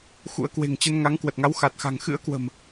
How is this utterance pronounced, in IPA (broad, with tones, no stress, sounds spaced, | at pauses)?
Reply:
x ṵ˧˥ ə̯ k w e̤˨˩ ŋ t͡ɕ ə˧ n ŋ a˨˦ ŋ k w ə˨˩ t̚ ŋ a˨˦ w x a˨˩ t̚ x a̤˨˩ ŋ x ɨ̰˧˥ ə̯ k w ə̤˨˩ m